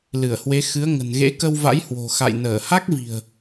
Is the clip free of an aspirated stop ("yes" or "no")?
yes